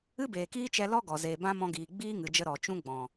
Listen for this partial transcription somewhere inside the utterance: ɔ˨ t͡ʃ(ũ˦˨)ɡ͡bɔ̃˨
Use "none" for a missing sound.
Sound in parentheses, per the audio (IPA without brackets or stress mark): ũ˦